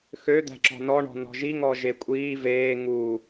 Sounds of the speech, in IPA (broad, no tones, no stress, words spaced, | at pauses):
xø d̪æ̤ǁɔ̤nɔɳɔ̤ nɔ̤ʒi ŋɔʒekʷʼiː veː ŋu